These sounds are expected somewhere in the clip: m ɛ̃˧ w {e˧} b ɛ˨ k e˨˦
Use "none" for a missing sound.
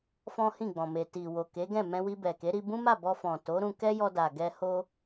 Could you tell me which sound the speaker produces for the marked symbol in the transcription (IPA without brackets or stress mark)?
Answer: i˧